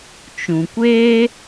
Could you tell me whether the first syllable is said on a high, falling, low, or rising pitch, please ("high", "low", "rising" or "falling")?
low